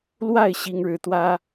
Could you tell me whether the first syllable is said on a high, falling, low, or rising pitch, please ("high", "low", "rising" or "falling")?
falling